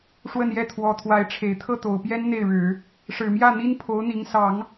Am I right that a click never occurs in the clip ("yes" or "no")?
yes